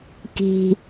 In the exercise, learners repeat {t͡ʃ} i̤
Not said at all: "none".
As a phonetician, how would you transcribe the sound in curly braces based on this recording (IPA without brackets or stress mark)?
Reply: k